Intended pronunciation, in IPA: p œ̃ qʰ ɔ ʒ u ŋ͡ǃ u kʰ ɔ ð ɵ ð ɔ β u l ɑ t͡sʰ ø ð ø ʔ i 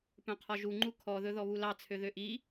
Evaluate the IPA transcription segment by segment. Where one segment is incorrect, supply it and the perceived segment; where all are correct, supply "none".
none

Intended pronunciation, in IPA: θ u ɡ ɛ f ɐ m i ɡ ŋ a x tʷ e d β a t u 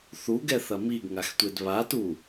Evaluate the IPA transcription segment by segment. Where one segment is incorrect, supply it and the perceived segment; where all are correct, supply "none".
f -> θ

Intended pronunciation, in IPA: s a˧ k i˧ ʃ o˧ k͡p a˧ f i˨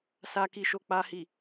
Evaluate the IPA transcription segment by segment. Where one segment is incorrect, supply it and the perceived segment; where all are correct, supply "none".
f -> h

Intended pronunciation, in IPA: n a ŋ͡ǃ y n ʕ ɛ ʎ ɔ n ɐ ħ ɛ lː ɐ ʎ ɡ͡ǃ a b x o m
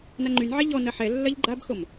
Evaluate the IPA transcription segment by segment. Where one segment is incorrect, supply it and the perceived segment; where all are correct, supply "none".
none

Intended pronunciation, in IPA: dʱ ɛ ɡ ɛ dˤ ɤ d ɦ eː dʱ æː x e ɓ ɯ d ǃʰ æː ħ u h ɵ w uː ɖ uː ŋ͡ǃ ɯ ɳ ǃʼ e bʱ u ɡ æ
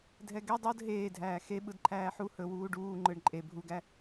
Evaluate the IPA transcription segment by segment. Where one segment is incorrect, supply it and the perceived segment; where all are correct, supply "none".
none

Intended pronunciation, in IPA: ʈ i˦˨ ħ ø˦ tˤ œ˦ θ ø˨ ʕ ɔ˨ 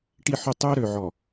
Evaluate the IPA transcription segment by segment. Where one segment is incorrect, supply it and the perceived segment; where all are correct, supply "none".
θ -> ɾ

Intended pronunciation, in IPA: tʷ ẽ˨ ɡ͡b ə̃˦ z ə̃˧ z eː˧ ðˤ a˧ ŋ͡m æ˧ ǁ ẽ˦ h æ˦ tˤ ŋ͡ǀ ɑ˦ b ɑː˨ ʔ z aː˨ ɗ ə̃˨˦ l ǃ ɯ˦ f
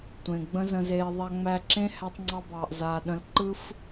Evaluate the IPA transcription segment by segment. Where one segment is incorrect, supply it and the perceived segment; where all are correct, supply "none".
none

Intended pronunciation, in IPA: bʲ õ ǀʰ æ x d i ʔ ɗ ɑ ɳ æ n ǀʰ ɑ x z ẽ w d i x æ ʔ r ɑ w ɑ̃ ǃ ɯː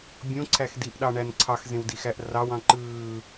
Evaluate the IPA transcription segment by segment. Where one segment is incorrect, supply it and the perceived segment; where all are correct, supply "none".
none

